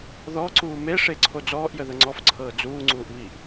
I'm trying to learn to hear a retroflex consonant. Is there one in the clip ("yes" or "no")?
yes